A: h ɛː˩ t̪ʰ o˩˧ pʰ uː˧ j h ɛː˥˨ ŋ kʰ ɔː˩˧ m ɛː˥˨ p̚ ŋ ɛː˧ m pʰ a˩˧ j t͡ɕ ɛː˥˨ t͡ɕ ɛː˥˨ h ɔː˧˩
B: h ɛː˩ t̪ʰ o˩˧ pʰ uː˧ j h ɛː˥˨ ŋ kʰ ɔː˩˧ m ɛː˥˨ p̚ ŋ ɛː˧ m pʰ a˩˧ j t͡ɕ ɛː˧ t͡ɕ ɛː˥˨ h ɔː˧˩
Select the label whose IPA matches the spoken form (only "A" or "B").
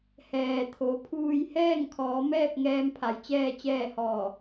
A